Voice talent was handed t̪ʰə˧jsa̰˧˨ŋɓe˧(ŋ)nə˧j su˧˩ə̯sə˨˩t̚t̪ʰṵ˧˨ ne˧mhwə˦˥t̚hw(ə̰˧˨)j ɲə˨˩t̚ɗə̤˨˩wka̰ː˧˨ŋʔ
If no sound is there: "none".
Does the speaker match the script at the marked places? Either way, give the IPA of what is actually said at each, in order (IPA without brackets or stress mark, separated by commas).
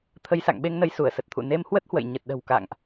ŋ, ə̰˧˨